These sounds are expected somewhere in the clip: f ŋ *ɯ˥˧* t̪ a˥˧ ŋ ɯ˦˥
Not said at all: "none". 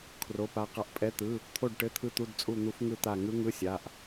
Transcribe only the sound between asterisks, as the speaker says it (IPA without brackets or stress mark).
ɯ˥˧